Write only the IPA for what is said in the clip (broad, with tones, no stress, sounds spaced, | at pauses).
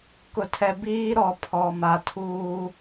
k ʊ˨ tʰ ɛ˨ b iː˦ ɾ ɔ˨ pʰ ɔ˨ m a˨ tʰ uː˦